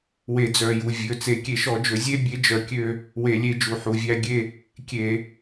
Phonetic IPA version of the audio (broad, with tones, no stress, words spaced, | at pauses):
we˧˩˧d͡zœ˩˧˩ju˩˧˩ vʲɵ˩˧˩t͡se˧˩˧ kʲe˧˩˧ʃɔ˧˩˧d͡ʒɵ˧˩˧ zʲe˥˧bʲe˨˦ d͡ʒœ˧˩˧kʲø˥˧ | we˧˩˧lʲe˨˦d͡ʒu˩˧˩ ħu˩˧˩vʲæ˥˧ɡʲe˥˧ | kʲe˧˩˧